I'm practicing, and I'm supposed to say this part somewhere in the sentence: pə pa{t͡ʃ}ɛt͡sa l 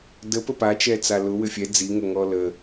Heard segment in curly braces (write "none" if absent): t͡ʃ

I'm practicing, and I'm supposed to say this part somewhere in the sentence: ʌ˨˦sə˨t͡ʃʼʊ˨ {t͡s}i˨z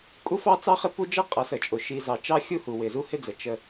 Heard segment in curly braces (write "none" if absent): ʃ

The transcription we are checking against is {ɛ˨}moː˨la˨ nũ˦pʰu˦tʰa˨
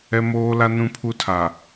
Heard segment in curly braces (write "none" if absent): ɛ˨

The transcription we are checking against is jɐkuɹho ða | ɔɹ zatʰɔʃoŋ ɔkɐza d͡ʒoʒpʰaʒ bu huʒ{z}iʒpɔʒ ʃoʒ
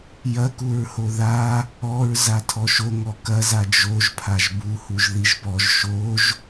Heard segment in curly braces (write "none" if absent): ð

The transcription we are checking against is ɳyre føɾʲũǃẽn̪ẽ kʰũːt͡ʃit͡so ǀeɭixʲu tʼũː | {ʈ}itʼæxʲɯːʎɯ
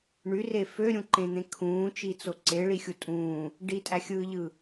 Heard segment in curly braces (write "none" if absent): ɖ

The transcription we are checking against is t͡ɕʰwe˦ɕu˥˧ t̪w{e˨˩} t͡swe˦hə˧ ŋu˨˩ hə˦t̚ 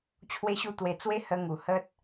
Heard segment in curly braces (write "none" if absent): e˧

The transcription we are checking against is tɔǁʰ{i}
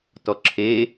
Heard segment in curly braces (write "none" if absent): e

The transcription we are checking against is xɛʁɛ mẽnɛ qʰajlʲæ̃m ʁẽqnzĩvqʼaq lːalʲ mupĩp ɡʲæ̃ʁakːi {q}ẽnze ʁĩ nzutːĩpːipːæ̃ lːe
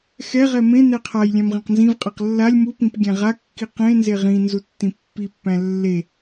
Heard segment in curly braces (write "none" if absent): q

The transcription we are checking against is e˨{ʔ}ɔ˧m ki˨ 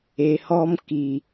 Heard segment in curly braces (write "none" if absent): h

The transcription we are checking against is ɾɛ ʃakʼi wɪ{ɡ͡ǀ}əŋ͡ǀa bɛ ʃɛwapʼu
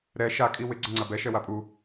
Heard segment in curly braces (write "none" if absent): ɡ͡ǀ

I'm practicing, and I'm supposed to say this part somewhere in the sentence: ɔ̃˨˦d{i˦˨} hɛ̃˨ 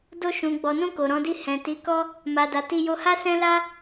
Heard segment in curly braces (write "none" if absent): i˦˨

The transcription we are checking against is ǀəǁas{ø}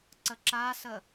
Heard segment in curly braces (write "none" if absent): ə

